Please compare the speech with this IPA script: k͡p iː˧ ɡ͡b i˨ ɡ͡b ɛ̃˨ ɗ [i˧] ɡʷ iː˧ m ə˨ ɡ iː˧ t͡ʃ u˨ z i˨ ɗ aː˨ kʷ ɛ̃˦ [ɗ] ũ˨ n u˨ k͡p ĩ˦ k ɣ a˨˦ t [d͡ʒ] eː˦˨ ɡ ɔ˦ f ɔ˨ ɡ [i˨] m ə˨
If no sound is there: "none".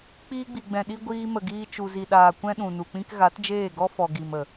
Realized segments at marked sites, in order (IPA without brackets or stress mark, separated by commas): i˧, ɗ, d͡ʒ, i˨